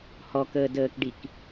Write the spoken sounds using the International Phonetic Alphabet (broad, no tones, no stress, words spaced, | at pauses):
hɔkəːdəːkɖik